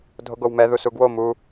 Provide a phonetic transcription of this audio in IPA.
dʱoɡowmɛ ðusuɡwo mu

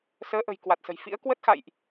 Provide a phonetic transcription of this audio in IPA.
səː˨˦ʔə̤˨˩j kwa˨˩t̚sə̤˨˩jfḭ˧˥ə̯ kwə˦˥t̚xa̰˧˨jʔ

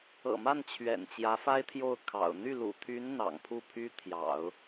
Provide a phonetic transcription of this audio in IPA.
ɤ̰˨˩ma˥˩n t͡ɕʰɥɛ̰˨˩n t͡ɕjä˧˥fa˥ɪ̯t̪ʰjo˥˩ʊ̯ kʰɑ̰˨˩ʊ̯ n̪y˥˩lṵ˨˩t̪ʰy˧˥n n̪ɑ̰˨˩ŋpʰu˥˩pʰy˥t̪ʰjɑ̰˨˩˦ʊ̯

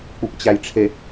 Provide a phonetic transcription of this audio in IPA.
k͡pupt͡ɕæjʈ͡ʂʰe

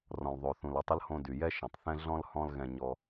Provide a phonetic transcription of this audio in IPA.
rɔ̃˩lðˤo˩θũ˩l ɔ˧tˤə˥lhõ˧ dy˩jɛ˥ʃɐ̃˩tˤθɛ̃˥ ɮɔ̃˥l hɔ̃˥lɣɛ̃˧ɲɔ˧

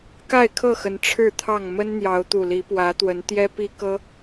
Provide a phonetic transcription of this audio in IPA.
ka˥˨ɪ̯kʰɤ˥˨xə˨˦n ʈ͡ʂʰɻ̩˥˨t̪ʰɑ˥˨ŋ mə˦nn̪jɑ˨˦ʊ̯t̪u˨˩ li˨˦pwä˨˦t̪wə˨˦n t̪jɛ˦pi˦kɤ˦

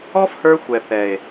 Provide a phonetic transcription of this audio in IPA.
ɔ˦fhə˞˧ xʷɛ˨θɛ˨e̯

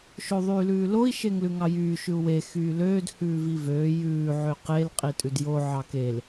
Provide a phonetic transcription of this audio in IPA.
ʃoðˤyːlʉːloi̯ ʃeŋlʉŋɑjyː ʃʉu̯we xyːløːd hʉːvivøː jʉː ʕøqel qʼitʼʉdjo ʕɑkel

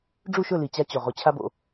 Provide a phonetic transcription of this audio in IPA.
ɖ͡ʐu˥˨ʃɵ˥˨li˨˩ t͡ɕa˧t͡ɕo˨˩ ʁo˧t͡ɕʰa˥bo̰˧

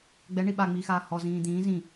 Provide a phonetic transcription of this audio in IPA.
ɡ͡bɛɳi ɓaŋ͡miːxaː hɔzĩː d̪ĩː zĩ

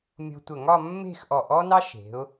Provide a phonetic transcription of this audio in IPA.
mʲo̤˧tʷə˧˩ ŋɒ˥˧mːe̤˥˧xʔɔ˧˩ ʔɔ˥nɑ˥ ʃe̤˩˧ʊ̯

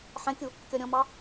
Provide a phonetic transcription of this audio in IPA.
ħɛ̃kʲu | kʲɒɾʲɔ̃mɑ

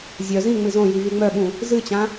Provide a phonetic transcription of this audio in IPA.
zʲœ zĩ ŋ͡mɨzõji vyŋ͡mœɓũ | zɨt͡ɕã

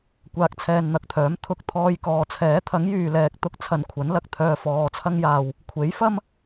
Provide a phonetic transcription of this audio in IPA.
kʷaː˧k̚t͡sʰɛː˧nn̪ɐ˨k̚t̪ʰœː˨˥m t̪ʰʊ˧k̚ t̪ʰɔː˧jkɔː˨ t͡sʰɛː˨˥t̪ʰɐ˨˥ŋ jyː˨lɛː˨k̚ t̪ʊ˥k̚ t͡sʰɐ˨˧n kʷʰɐ˨˥nlɐ˧k̚ t̪ʰœː˧fɔː˨t͡sʰɐ˥ŋjaː˨w | kʷʰe˨˥jfɐ˥m

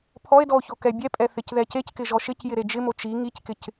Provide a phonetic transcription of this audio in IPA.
pʰɔe̯dɔo̯ço kɛbʲɛpʼɛ θɪcðɛceckɪ ʒɔʃɪcjɪɾe d͡ʒɪmo t͡ʃi ŋickɪc

